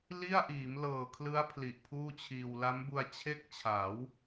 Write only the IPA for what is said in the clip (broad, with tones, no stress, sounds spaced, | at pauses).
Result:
l i˥˩ a̯ ʔ iː˩˦ m l ɤː˨˩ kʰ l ɯ˦˥ a̯ pʰ l i˨˩ ʔ pʰ uː˥˩ t͡ɕʰ iː˧ w l a˦˥ m b u˧ a̯ t͡ɕʰ e˥˩ k̚ t͡ɕʰ a˩˦ w